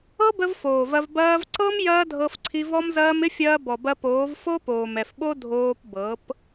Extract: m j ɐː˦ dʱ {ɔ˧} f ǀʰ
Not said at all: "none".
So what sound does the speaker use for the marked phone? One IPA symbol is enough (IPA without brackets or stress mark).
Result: ɤ˧